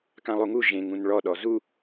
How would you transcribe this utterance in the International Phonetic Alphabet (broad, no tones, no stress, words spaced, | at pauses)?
kãlˠuŋu ʒẽŋũn ɭɔɗɔ zu